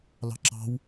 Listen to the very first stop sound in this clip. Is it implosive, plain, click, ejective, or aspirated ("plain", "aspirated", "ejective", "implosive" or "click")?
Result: click